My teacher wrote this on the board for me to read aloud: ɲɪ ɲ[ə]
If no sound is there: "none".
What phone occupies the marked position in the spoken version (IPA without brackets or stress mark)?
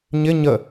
ə